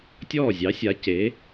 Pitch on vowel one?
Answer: falling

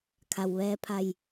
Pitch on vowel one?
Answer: low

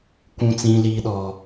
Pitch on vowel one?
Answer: high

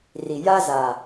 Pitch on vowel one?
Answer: low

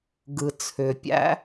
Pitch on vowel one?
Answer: low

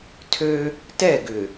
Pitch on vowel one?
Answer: high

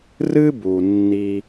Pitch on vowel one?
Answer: high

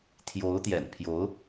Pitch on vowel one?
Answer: rising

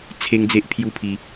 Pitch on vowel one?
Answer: high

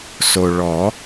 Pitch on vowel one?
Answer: low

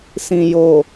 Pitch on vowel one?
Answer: low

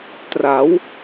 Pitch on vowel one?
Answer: rising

